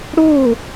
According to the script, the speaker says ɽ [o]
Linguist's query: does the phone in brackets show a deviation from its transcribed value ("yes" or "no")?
no